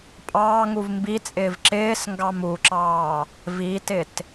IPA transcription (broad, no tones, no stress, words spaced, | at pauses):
pʼɑːŋuv mbit͡sʼɪːv ǁɪːsŋɡɑm uǁɑː | vitɪt